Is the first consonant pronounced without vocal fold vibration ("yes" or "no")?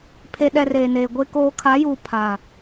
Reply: yes